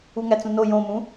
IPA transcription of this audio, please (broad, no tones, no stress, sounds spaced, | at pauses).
u ŋ æ t͡s ũ n o j õ m ũ